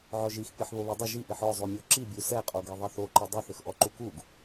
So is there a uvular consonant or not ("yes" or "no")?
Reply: yes